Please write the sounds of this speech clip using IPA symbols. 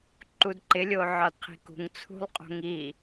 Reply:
ǃ u d ǃ ɪ lʲ o ʕ ɒ d qʰ i̤ k ṳ ŋ t͡sʰ ṳ lˠ qʼ o̤ ŋ i

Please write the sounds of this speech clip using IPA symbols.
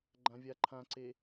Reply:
ɡ͡ǃ ã vʲ a ǃʰ ã ǀ e

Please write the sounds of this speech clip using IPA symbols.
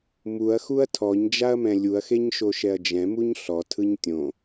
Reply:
m u ɐ̯ x u ɐ̯ tʰ ɔ ɲ d͡ʒ a ɐ̯ m ɛ̃ lʲ u ɐ̯ x e ɲ ʃ o ʃ ɛ ɐ̯ d͡ʒ ɛ̃ m u ɲ ɬ ɔ tʰ ɯ ɲ tʲ õ

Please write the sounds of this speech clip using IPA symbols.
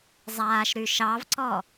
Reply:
zˤ aː ʃ ɾ y ʃ ɑ v ǀ ɔ

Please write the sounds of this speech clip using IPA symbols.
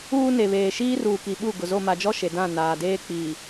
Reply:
uː˦ n e˨ β eː˨ ʃ iː˦ r uː˨ k i˨ ɓ u˦˨ ɡ ʊ˨ z o˦˨ m a˨ d͡ʒ ɔ˦ ʃ e˨ d ã˦˨ n aː˨ d eː˦ k͡p i˨

